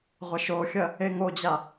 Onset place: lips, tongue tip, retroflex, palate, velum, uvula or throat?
uvula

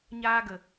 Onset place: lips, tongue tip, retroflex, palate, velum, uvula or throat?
palate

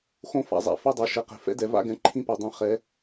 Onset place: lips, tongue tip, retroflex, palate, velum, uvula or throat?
velum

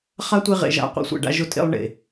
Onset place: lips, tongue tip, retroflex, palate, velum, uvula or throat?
uvula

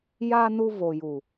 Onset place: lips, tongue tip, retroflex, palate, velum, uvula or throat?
palate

